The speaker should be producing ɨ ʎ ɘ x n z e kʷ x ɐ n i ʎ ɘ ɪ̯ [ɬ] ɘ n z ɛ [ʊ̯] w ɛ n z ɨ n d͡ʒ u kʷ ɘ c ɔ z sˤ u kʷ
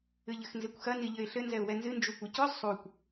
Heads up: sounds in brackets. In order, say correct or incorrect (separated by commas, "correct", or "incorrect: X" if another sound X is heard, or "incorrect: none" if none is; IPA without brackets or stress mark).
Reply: correct, correct